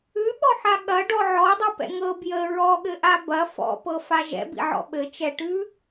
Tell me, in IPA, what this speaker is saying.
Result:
ʉ ɓ ɔ ħ a ɠ ɐ ɖ ɔ ʕ ɔ dˤ i p ɛ̰ ŋ ɤ b j ə ɹ ɔ ɠ ɘ ʔ a b ɐ f ɔ̰ p ɤ f a ʒ ɛ̰ b ḭ ʕ ɔ̰ ɓ ɘ t͡ʃ ɛ ʈ ʉ

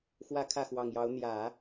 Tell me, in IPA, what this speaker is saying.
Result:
x w ä˥ kʰ ä˥˩ x w ɑ˨˩ ŋ j ɑ˧˥ ʊ̯ n̪ j ä˨˩˦

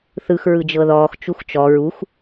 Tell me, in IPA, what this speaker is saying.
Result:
θ ɯ x ɹ ɯ d͡ʒ ɤ ð ɔː x t͡ʃ u x t͡ʃ ɔ ɹ u x

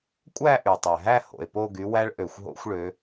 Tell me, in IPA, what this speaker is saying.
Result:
kʷʼ æ˥˧ ʔ y˩ tˤ ɛ˩ ɦ æ˥˧ h o̰˩ e̯ p o˥˧ ɡ y˨˦ w æ˥ ɭ ʔ ø˩ xʷ ɦ o̰˥ xʷ ɭ ø˨˦

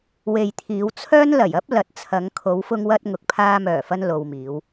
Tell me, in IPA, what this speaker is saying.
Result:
w e˨ j t̪ʰ iː˨˧ w t͡sʰ œː˥ n l ɐ˨˩ j ɐ˥ p̚ l ɐ˨˥ t̚ t͡sʰ ɐ˨˧ ŋ kʰ o˨˧ w f ʊ˧ ŋ w ɐ˧ t̚ ŋ ʊ˨ k̚ pʰ aː˧ m œː˨˩ f ɐ˧ n l o˨ w m iː˨˧ w

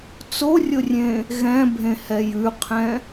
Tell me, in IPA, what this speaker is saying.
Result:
t͡s o rʲ o rʲ ẽ | ɣ ɛ̃ bʱ ẽ h ɛ j ʉ qʰ ɛ̃

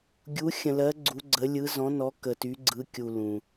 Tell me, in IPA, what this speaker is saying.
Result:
ɡʲ u˨˦ xʲ ə̃˨ l ɜ˨˦ ɡ͡ǀ u˨˦ ɡ͡ǀ ə˨˦ lʲ ɯ˨˦ z ɔ̃˨˦ n ɔ˨˦ k ə˨ t y˨˦ ɡ͡ǀ ɯ˨˦ kʲ u˨ l ũ˨

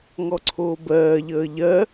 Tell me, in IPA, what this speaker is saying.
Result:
ŋ ɔ ǀʰ oː b ɜː ʎ əː ʎ ɜ

